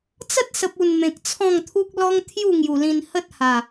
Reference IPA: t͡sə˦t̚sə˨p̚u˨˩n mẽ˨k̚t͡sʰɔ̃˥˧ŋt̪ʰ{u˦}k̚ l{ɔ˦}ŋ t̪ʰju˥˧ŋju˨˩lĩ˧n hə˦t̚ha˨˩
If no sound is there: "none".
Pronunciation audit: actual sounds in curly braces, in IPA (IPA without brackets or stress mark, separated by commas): u˦, ɔ˦